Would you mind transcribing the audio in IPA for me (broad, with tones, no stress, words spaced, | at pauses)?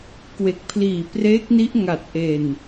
kwe˨˩k̚pʰliː˨˩preː˦˥k̚ni˦˥ʔ ŋa˨˩t̚ʔe˨˩n